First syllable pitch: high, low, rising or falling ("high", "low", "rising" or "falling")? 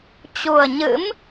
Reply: low